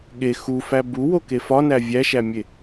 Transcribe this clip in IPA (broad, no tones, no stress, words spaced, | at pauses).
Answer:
ɠe xufæ buwoke fɒnæ vʲæʃæmʲe